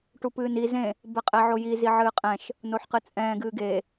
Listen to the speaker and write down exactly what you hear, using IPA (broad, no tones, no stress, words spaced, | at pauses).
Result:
ʈupɨːni zẽ | bɛqʼɛʕoji ziʕɨːqʼɛ̃ʃ | noħqɨt͡sʼɛ̃ː ɡɨːɡe